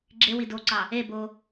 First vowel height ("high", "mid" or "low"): mid